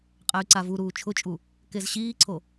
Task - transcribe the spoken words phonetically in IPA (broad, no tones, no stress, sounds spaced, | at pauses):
qʼ ɛ y̯ ǀ a v u ɾ uː t͡ʃʰ ʊ t͡ʃʼ u | k e z ɕ iː ǀʰ o